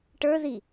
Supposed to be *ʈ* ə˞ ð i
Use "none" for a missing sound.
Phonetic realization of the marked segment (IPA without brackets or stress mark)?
ʈ